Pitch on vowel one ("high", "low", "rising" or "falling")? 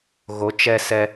rising